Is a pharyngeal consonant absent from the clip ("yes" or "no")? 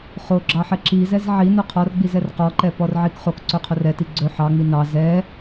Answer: no